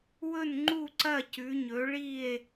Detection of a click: present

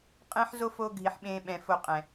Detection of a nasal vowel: present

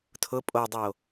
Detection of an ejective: present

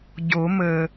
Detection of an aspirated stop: absent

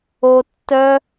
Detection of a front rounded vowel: present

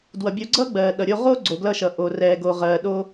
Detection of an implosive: present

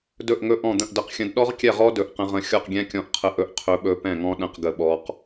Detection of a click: absent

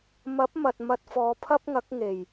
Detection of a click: absent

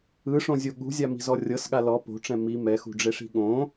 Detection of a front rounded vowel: absent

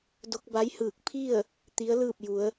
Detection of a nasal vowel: absent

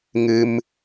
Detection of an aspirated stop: absent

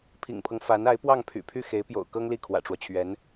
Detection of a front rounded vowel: present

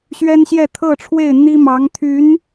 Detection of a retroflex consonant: present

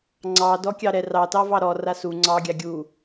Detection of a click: present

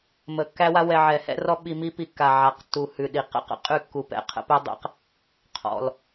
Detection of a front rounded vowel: absent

